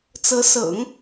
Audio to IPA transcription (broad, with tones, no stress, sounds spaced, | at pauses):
t͡s ɤ˧˥ s ɤ̰˨˩˦ ŋ